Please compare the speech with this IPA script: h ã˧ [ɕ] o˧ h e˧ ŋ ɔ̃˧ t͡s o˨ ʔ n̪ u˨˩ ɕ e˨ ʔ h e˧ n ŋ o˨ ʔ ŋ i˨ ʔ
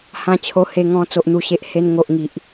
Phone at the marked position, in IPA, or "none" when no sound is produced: t͡ɕʰ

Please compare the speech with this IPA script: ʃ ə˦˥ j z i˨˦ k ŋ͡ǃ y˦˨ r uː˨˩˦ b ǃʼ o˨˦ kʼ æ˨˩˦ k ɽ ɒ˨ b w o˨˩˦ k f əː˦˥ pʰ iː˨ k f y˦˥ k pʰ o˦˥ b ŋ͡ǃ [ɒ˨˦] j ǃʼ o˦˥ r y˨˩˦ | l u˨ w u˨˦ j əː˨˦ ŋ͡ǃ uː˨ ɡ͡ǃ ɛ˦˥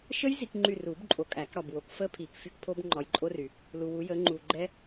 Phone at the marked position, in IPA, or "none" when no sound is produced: ɒ˨˦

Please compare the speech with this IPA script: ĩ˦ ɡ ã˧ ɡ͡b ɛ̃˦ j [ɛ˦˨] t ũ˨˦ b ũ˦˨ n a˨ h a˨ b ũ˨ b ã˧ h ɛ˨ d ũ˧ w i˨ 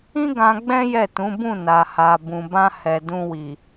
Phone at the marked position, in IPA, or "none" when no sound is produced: ɛ˦˨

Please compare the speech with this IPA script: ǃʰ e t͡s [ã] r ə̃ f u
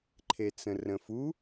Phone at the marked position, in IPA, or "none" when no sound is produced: ə̃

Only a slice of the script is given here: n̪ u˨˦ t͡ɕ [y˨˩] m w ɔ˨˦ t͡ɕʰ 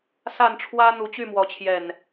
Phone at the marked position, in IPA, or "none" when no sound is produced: y˥˨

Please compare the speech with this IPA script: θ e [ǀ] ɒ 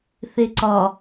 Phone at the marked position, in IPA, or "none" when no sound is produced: ǀ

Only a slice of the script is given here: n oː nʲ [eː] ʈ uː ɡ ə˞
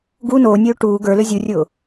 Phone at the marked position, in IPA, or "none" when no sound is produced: øː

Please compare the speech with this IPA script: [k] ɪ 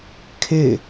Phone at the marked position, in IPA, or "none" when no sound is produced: kʰ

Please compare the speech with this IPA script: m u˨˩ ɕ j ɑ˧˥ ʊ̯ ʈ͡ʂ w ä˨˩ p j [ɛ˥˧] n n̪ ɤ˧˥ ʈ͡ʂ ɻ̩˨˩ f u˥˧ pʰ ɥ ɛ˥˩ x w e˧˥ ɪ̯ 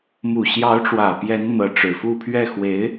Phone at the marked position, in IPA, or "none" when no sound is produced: ɛ˧˥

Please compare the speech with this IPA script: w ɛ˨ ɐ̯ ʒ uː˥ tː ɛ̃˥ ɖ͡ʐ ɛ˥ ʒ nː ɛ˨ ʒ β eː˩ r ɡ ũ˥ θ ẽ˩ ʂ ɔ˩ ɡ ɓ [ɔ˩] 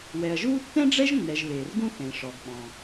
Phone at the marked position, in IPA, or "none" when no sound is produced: ɔ̃˩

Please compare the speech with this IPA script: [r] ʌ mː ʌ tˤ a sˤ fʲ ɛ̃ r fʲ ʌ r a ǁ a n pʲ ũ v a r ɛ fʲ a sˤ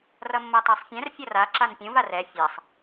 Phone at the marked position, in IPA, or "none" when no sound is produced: r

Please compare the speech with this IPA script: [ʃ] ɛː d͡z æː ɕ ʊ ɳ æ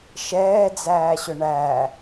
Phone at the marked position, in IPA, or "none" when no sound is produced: ʃ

